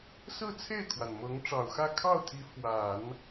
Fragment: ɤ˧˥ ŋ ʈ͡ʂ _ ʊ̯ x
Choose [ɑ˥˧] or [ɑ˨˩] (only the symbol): ɑ˨˩